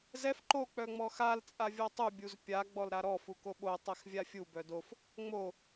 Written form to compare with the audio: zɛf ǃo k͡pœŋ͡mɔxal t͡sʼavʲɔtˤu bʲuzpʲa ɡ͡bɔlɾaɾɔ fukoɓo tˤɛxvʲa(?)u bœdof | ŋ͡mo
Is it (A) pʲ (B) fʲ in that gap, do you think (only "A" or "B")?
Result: B